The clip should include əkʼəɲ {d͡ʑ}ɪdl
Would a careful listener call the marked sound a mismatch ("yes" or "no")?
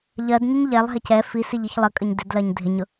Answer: yes